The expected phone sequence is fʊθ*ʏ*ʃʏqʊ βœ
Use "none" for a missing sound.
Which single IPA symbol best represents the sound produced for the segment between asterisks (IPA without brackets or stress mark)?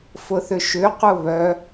ʏ